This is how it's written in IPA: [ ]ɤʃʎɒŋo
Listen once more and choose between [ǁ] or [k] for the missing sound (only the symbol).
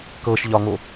k